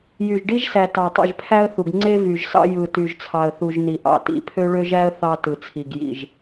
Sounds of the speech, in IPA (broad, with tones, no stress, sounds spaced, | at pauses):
j y˨ ʒ ɖ i˦ ʒ s æ˨ t ɑ˨ tˤ ḭ˨ ʒ pʰ æ˦ ə̯ θ u˨ ɡ ŋ͡ǀ e˦ v y˨ ʒ s ɑ̰˦ j ɯ˨ t y˨ ʒ t͡sʰ ɑ˨ ə̯ θ u˨ ʒ n i˨ ʔ ɑ̰˨ t ḭ˨ pʰ ø˦ ɭ ø˦ ʒ æ˦ ə̯ θ ɑ˦ t ɯ˨ t͡sʰ i˨ ɡ j ḭ˨ ʒ